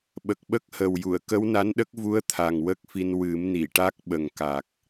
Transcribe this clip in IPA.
ɓə˨˩k̚ɓə˦˥k̚hə˨˩wju˨˩˨ə̯ kə˧˥wna˧˥nɗə˦˥k̚vu˧˥ə̯ t̪ʰa˨˩ŋwə˦˥k̚fi˧n wɨ˨˩˦m ni˨˩˨ʈa˦˥k̚ɓə˨˩ŋ ka˨˩k̚

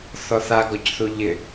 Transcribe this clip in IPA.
θɔθa ɡɔcθuʎɪ

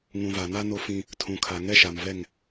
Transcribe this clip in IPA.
ŋũ˨ va˨ na˦ no˦fĩ˦ | tʰũ˨kʰa˨ ŋɛ˦ʃa˨mvɛ˦˨ŋ

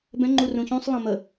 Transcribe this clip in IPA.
bɛ̃ ŋ͡ǃurũçũsˤ lˠẽmə

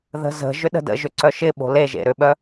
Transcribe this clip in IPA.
ðə̤zə̤ ʒʏɗə̤də̰ʒʏ ǀœʃɪɓo̤ leʒḛ ɾʏɓœ

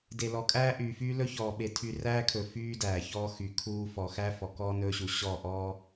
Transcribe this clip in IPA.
de˨lɔ˨kʼæː˦ ʔyː˨fyː˦ lɵ˦çɔː˨ɓe˨ tʰy˨ræː˦kʰɵ˨ fyː˦dæː˨çɔː˦ xy˨kʰuː˦ fɔ˨xæ˦ fɔ˨kɔː˦nɵː˦ɕu˨ ɕɔ˦˨ ʔɔː˦

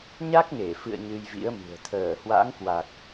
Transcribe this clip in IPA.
ɲa˦˥k̚ŋe˧˩fɨ̰˧˨ə̯ ɲɨ˧jvḭ˧˥ə̯mɨ̤˨˩ə̯ t̪ʰəː˧˩hwa̰˧˥ŋkwa˨˩k̚

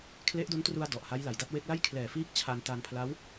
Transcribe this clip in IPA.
kʰle˦˥ʔdo˦˥ntru˧a̯ dɔ˨˩ʔha˦˥jla˨˩jda˥˩t̚ we˦˥k̚la˥˩j kʰlɛː˨˩ fiː˥˩k̚t͡ɕʰa˧nta˧n pʰla˦˥w

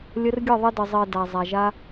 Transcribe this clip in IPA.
lʲə˧rɡʲɘ˦˨ðˤə˧ də˨zˤɜ˨ da˨zˤa˨ʒa˧

